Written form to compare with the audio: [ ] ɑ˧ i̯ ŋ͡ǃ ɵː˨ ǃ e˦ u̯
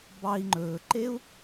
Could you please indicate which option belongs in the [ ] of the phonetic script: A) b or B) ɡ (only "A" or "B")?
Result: A